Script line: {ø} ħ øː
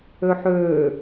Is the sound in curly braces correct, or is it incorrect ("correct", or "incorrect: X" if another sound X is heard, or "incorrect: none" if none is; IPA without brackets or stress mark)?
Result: correct